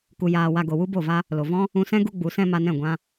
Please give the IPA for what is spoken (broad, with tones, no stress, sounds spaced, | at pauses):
k u˧ j aː˧ w a˧ ɡ o˨ w u˦ b o˦˨ v a˦ | l o˨ v ɔ̃˦ | ũ˧ s ɛ̃˦ ɡ u˦ ɡ͡b u˨˦ s ɛ̃˦ m a˧ n ɛ̃˦˨ ɡʷ ã˦